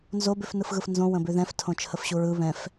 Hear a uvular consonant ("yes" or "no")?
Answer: no